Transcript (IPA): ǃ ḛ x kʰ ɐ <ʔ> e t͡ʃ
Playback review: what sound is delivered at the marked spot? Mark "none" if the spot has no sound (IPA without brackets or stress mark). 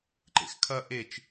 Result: ʔ